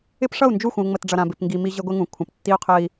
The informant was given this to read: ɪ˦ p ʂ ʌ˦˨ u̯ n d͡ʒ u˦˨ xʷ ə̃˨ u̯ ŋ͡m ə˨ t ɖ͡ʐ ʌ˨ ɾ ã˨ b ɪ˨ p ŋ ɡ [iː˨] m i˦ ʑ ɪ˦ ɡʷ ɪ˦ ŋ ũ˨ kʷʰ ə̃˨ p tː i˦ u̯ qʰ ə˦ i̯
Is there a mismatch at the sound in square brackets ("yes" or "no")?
yes